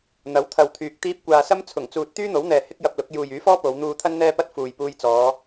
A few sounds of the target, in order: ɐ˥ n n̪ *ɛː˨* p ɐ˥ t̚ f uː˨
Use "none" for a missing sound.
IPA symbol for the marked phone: ɛː˥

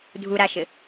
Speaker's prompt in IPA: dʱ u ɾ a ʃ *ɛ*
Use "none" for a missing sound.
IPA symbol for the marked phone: ɘ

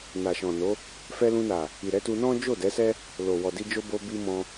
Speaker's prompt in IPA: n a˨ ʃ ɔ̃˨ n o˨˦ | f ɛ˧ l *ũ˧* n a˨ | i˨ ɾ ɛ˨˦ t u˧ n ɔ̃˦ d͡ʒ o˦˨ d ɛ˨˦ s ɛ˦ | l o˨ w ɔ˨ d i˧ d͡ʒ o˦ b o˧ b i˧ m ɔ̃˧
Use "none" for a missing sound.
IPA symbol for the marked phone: ũ˧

